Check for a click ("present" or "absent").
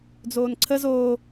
present